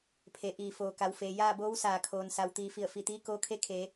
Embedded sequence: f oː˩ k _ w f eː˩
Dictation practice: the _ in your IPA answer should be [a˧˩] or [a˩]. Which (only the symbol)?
a˩